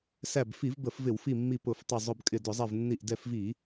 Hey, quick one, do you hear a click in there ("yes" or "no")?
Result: no